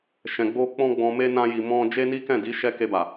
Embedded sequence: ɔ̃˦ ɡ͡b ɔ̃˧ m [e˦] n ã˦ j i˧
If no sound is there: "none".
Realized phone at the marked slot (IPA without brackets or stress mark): e˦